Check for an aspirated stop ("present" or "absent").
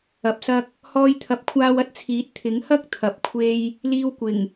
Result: present